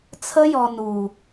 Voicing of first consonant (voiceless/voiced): voiceless